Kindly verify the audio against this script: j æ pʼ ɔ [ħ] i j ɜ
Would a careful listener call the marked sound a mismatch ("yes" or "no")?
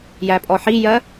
no